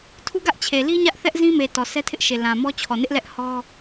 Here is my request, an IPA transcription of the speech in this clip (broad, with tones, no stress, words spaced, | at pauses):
tʰu˦ ɡä˦ʔt͡ɕʰe˨li˦ ɲä˦ʔθɛ˦ʔzĩ˦me˨ tɔ˨sɛ˦tʰɪ˦ʔʃe˨ lã˨ mɔ˦ t͡ɕʰɔ˨nɪ˦ʔ lɛ˦ʔhɔ˦